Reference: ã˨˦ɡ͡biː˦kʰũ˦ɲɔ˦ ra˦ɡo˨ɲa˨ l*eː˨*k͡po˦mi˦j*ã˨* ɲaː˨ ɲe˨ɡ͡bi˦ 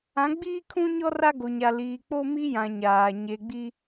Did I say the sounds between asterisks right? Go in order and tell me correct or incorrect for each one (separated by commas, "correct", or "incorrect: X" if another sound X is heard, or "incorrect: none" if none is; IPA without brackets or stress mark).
incorrect: iː˨, correct